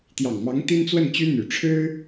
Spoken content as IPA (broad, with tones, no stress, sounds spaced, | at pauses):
t̪ j ɑ˨˩ ŋ m ɑ˧˥ ŋ t̪ i˥ n t͡s w ə˥˩ n t͡ɕ y˥ n̪ y˨˩ ʈ͡ʂʰ ɻ̩˥